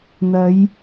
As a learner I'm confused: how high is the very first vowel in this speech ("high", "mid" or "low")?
low